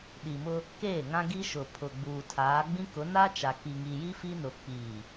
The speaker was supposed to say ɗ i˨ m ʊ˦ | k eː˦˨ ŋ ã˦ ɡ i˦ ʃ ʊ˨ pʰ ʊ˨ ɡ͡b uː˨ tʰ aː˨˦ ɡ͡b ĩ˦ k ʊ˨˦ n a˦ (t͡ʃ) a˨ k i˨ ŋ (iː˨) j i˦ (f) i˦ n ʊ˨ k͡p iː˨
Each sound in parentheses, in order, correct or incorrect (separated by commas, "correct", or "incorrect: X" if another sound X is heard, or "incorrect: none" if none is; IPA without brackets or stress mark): correct, incorrect: i˨, correct